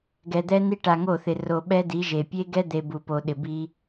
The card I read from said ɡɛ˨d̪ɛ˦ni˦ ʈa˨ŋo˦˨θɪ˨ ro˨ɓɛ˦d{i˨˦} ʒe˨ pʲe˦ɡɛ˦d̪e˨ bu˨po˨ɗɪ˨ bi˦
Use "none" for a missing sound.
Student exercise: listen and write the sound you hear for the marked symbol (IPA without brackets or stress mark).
i˨˦